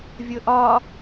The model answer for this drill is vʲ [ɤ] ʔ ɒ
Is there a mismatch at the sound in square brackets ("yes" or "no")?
no